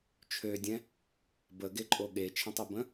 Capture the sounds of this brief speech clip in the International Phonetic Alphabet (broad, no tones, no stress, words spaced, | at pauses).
t͡ʃʰødʲɛ̃ | bəɡeǃʼo ɠet͡ʃʰə̃tˤøbə̃